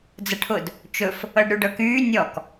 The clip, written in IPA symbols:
d͡z ə ʈʰ ʊ d | t͡ʃ ɵ f | ɤ ɖ ɾ y ɖ ɤ k yː nʲ ɔ k

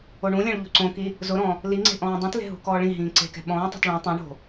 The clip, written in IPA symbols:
o ɳ ũ lʲ ɛ̃ ɭ ʎ o̤ ǀ õ k i | z ʊ ɾ ɔ̃ | l i ŋ͡ǀ e̤ ʔ ɔ̃ː dˤ ĩ t l e̤ ɦ ṳ k ɔː ɭ ĩ ɦ ĩː ǀ e̤ k ɛ̤ ɓ ɔ̃ː tˤ e̤ t ɭ õ tˤ ũ ɳ o̤

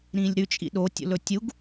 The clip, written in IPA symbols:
ɾ ĩː lʲ ɾ ʉ t͡ʃʼ ḭ ɗ o tʲ o̰ l ɵ tʲ u ɡ

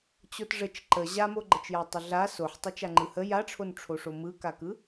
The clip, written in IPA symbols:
t͡ɕ o t ʐ ə t͡ʃ ǃ ə ʑ a m o ɡ͡ǃ ə t͡ʃ j a tˤ ə ɮ a s o ħ tˤ ɯ t͡ʃ a ŋ͡ǃ ɯ h ə j a ʈ͡ʂʰ o n ʈ͡ʂʰ o ʂ o m ɯ k a k ɯ

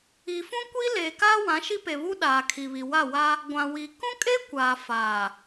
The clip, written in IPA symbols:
i˨ f ũ˦ kʷ i˦ l eː˨ k aː˦ w ã˨˦ ʃ i˦ p e˨ β u˦ ɗ aː˨ kʰ i˨ β i˨ w a˦˨ w a˦ | ɡʷ ã˨ w i˨ k ũ˦ kʼ e˦ kʷ aː˨ f aː˨

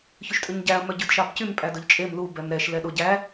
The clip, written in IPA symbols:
ç ʉ ʃ tʼ ʉ ɲ ɟ æ ɐ̯ m œ ɟ ʉ d ʃ ɑ b c y m pʼ æ d ɵ ʎ t͡ʃʼ e m l u b ɛ m ɾ ɛ ʃ l ɛ ɗ o ɟ æ

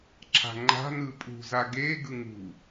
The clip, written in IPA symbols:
ǁ a̤ ŋ͡ǃ a̤ n ɯ pʼ ṳ z a ɡ e ɡ ɯ ŋ ṳ

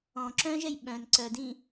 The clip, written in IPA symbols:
ɔ̃ ǁ œ̃ ʒ ɛ j ɓ œ̃ n ǀ œ d ĩ

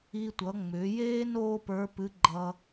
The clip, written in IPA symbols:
i˧ tʷ ʌ˩˧ ŋ͡m ʏː˩˧ j eː˥ n oː˥ p ə˞˧˥ p ɨ˧˥ ɡ͡ǃ ʌ˧

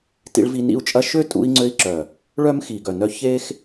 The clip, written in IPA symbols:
t ḭ˧ ɭ v i˧ n ḭ˦˨ u̯ t͡ʃʼ ɐ˦ ʃ ø˦ tʼ ṵ˧ i̯ ŋ͡ǀ ø˧ i̯ ǁ œ˨ | ɭ œ˦ m x i˨ ɡ œ˨ n œ˧ ç eː˦ x

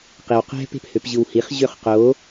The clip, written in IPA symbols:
q i w q ɛ̤ p e̤ p h ø p ʑ ɯ w h i χ ʑ ø χ q o

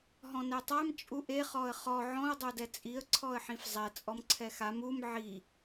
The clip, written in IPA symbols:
ɦ ɔ̃ n ɛ tˤ a m t͡ʃʼ u ʔ e χ ɔ ə̯ χ ɔ ʕ ɔ̃ ə̯ dˤ o d ɛ t͡sʼ i ə̯ ǀʰ ɔ ə̯ ħ ĩ f zˤ ɛ t͡sʼ ɔ m ǀʰ ɛ x a m u m ʕ i

